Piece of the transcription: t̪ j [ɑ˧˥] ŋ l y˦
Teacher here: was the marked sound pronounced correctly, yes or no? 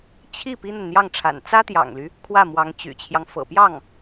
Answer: no